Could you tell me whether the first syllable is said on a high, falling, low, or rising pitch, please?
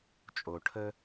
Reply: low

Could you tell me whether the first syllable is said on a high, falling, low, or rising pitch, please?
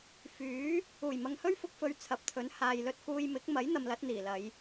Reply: rising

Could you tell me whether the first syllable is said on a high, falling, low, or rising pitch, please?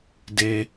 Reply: low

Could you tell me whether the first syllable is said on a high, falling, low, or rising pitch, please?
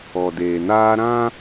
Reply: low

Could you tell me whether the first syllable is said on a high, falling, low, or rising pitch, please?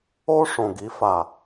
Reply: high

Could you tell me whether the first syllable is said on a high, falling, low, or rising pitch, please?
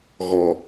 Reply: low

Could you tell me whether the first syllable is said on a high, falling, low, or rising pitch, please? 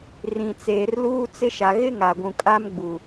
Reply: low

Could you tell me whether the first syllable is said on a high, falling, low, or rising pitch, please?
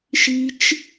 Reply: high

